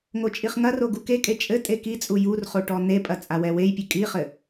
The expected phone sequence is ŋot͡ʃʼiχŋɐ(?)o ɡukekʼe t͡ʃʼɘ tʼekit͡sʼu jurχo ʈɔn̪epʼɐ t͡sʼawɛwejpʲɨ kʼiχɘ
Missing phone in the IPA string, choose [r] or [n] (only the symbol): r